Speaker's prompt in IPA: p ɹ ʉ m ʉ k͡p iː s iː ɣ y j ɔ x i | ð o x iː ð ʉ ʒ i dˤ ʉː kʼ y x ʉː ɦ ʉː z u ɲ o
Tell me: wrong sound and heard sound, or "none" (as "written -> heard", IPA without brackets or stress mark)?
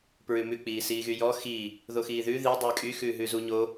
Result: ʒ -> ð